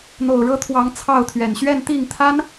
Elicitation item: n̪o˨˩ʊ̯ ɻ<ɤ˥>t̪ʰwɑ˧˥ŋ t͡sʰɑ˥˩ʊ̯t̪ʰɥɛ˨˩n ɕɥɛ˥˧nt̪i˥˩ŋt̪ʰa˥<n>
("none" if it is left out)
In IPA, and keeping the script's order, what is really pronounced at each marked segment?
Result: ɤ˥, n

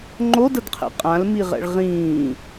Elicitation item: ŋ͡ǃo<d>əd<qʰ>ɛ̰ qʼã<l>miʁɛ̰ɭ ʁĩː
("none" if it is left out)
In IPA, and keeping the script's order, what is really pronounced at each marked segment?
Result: d, qʰ, l

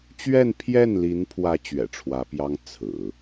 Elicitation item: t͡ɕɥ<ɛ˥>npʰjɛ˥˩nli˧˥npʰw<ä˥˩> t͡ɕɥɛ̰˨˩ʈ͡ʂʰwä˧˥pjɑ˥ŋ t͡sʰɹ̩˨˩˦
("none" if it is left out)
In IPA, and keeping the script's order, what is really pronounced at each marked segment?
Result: ɛ˥˧, ä˧˥

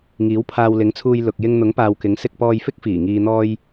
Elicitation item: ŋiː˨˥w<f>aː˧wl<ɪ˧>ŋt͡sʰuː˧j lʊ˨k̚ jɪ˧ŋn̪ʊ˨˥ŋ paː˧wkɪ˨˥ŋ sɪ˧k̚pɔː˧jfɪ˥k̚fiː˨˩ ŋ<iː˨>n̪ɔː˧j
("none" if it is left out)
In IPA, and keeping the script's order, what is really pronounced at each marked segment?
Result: pʰ, ɪ˨˥, iː˨

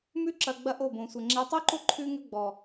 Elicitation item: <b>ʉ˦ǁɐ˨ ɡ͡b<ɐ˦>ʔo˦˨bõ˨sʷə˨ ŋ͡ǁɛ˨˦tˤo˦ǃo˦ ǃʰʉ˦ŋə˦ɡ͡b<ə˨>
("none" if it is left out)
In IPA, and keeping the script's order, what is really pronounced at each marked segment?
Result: m, ɐ˦, ɔ˨

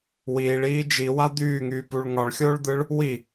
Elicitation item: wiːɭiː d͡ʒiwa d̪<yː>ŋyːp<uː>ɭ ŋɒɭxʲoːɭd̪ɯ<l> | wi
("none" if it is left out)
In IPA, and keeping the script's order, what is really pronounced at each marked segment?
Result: yː, u, ɭ

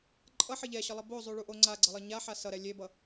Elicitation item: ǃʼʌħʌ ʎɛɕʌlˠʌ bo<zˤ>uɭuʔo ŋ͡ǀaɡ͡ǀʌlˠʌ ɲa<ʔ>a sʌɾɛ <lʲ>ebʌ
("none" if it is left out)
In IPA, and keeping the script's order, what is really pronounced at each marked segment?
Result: zˤ, ħ, lʲ

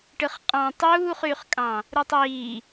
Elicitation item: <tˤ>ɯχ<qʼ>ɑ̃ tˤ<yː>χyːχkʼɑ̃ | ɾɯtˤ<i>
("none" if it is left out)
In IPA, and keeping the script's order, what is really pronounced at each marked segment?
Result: ʈ, qʼ, uː, iː

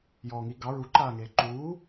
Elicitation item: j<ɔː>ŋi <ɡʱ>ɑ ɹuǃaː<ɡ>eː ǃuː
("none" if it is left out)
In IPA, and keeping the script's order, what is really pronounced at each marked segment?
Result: ɔː, ɡ, ŋ

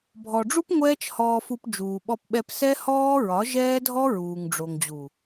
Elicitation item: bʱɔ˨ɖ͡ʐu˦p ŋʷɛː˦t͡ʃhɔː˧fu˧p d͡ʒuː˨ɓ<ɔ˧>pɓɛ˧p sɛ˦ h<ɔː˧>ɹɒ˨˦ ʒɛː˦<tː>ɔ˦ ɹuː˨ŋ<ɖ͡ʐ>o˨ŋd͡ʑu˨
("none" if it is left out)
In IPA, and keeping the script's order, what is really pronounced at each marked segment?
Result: ɔ˧, ɔː˦, dʱ, ɖ͡ʐ

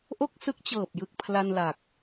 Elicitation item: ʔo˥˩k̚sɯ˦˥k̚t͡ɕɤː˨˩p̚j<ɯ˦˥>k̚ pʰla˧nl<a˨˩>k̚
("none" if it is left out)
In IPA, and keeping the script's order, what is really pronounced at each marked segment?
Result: ɯ˨˩, a˨˩

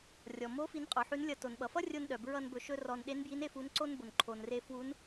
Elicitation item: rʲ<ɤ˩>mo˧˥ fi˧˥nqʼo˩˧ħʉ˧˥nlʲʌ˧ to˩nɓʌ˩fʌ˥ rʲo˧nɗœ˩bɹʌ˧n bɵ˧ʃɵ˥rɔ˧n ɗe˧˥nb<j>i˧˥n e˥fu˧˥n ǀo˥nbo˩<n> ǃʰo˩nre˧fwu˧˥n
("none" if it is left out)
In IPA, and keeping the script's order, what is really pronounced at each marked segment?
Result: ɔ˩, j, n

